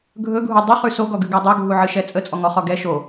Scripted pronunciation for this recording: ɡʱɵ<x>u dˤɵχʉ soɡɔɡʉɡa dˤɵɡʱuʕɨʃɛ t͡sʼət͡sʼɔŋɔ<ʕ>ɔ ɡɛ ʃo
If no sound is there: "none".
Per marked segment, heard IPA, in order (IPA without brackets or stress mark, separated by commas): ɡʱ, χ